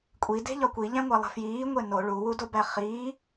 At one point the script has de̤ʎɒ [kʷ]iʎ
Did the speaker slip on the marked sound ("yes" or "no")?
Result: no